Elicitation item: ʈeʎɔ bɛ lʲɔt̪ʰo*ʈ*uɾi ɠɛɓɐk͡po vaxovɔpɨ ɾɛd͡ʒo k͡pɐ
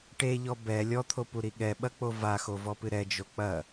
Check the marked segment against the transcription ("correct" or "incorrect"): incorrect